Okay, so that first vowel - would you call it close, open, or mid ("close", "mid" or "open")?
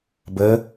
mid